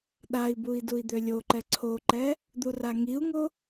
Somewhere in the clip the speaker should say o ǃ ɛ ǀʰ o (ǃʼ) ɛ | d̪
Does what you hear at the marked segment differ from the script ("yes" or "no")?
yes